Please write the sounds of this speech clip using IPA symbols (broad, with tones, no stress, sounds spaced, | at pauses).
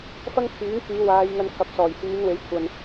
f ɐ˥ ŋ kʰ yː˨˥ ŋ k yː˨˧ w aː˨˧ j ŋ ɐ˧ n kʰ ɐ˨˥ p̚ s ɔː˨˩ j h yː˨˧ n w e˨˧ j kʷʰ ɐ˨ n